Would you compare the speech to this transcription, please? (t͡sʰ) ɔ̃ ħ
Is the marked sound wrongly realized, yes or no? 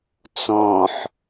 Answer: yes